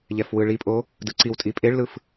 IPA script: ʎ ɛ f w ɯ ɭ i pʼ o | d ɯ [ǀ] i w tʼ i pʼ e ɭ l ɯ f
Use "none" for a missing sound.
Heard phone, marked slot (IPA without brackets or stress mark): ǀ